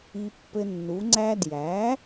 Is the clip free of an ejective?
yes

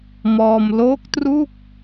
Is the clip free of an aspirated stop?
yes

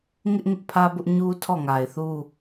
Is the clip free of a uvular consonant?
yes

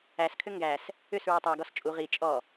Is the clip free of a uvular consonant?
no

